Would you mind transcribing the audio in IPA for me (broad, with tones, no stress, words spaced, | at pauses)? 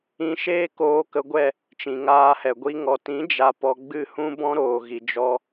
ĩ˧ʃeː˦ koː˧kə˧ɡʷɛ˦˨ | t͡ʃĩ˨ŋaː˧hɛ˨ɡʷi˧ ŋɔ˨tĩ˨˦ d͡ʒa˧pɔ˧ ɡ͡bɨ˦˨hũ˦bɔ̃˦ɾoː˨ ɣi˨d͡ʒɔ˧